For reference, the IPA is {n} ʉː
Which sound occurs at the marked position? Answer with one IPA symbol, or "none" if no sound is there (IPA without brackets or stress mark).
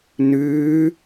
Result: n